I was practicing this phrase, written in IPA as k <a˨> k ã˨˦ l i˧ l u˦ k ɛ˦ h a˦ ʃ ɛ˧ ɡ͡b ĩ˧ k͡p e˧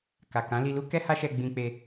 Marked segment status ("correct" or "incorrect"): correct